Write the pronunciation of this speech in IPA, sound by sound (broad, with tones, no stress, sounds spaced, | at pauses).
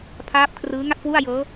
pʰ aː˦˥ p̚ kʰ r ɯː˦˥ ŋ a˥˩ t̚ k w u˥˩ a̯ j ɤː˦˥